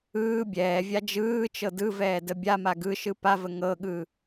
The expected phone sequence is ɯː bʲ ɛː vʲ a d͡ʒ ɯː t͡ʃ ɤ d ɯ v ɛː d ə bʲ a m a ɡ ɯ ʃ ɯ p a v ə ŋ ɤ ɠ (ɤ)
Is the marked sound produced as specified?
no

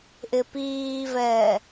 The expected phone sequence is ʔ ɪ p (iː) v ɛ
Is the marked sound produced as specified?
yes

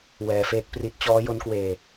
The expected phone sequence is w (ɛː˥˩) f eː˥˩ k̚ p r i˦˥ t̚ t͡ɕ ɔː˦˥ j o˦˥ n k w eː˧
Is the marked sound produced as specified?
no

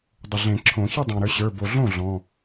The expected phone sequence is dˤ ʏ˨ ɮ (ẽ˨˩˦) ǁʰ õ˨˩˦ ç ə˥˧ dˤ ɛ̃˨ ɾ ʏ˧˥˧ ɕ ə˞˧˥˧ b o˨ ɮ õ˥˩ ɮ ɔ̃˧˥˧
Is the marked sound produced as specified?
yes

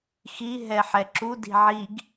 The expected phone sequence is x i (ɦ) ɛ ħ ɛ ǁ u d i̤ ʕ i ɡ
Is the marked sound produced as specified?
yes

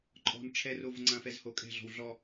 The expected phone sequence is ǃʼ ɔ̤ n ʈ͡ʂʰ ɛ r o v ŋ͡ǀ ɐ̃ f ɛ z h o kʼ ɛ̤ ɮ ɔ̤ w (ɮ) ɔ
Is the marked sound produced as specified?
yes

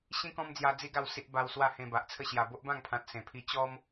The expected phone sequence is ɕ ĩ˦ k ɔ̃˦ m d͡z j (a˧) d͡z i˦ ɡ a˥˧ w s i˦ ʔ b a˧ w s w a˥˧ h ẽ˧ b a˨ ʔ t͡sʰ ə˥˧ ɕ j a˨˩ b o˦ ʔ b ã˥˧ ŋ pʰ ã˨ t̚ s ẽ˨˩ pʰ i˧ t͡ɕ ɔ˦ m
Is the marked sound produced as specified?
yes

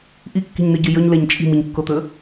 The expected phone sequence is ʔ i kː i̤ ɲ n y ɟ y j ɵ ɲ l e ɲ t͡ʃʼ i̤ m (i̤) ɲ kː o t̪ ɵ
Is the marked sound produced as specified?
no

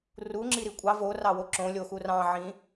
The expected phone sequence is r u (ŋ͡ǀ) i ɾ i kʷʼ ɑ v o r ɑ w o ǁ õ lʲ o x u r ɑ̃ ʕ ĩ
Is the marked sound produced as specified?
no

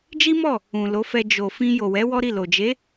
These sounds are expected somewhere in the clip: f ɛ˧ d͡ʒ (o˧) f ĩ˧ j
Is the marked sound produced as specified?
no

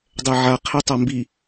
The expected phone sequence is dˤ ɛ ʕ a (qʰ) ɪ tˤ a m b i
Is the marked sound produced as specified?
yes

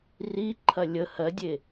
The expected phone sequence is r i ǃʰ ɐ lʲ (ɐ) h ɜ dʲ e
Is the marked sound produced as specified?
no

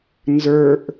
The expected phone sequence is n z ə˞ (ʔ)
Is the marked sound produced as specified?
yes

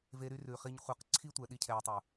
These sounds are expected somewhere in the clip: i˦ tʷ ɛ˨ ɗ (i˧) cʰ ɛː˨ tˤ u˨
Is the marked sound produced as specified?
yes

